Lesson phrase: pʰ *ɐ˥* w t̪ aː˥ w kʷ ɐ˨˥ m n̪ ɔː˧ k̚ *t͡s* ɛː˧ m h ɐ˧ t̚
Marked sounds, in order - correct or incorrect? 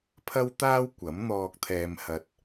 correct, incorrect: t̪ʰ

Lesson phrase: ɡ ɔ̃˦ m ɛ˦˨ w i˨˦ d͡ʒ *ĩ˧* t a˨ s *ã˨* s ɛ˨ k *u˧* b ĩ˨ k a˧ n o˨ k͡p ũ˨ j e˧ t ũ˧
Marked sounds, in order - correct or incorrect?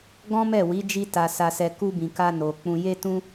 incorrect: i˧, incorrect: a˨, correct

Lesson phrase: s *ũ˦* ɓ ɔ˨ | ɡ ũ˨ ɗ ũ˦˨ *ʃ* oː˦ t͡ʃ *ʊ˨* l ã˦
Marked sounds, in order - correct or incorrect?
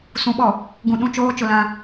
incorrect: ũ˨˦, incorrect: t͡ʃ, correct

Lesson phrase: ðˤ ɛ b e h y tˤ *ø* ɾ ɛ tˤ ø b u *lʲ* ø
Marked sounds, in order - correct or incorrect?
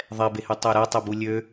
correct, correct

